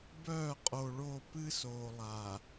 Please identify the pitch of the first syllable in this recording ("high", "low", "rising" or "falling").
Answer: falling